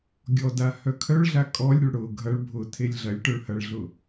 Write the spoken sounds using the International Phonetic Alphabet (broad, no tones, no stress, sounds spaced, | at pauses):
ɡʲ ɔ d a h œ kʰ œ ɭ ɮ a kʼ ɔ lʲ ɾʲ ʊ ɭ ɽ ʊ ɡʱ ɐ ɭ bʱ ʊ tʰ e lʲ ɮ ɐ lʲ ʈ œ ɭ h ɐ ɭ ɮ ʊ